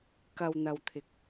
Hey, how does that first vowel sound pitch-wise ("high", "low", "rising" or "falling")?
low